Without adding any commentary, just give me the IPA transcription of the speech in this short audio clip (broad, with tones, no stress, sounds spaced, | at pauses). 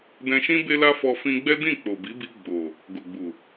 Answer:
d ɛ̃˧ ʃ ĩ˦ b e˦ l a˦ f ɔ˧ f ĩ˧ ɡ͡b ɛ˦ d ĩ˦˨ k͡p o˨ b i˨˦ b i˧ ɡ͡b o˨ | ɡ o˨ ɡ͡b u˨